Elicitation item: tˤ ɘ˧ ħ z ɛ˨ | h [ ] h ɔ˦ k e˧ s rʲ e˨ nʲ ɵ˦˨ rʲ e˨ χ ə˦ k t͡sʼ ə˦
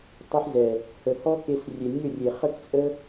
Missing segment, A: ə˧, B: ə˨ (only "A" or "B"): B